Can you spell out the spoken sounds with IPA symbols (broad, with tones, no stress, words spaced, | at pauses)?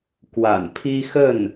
kwa̰˨˩n pʰi˥xə˥˩n